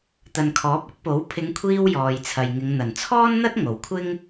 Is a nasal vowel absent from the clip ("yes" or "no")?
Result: yes